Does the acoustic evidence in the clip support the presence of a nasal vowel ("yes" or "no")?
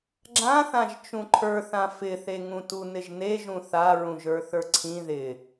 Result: yes